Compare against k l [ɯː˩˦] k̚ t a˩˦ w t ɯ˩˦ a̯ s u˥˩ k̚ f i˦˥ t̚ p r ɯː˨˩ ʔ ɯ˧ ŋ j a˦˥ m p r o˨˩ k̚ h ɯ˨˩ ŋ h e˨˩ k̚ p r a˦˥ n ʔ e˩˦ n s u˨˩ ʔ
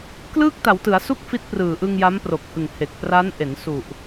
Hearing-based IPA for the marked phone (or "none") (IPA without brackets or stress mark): ɯː˥˩